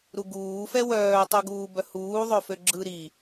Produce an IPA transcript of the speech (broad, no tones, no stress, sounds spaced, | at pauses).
ɾ u ɡ uː f ɛ w œː tˤ o ɡ uː b œ h uː ðˤ ø f ø ɡ͡ǁ ɯ ɾ i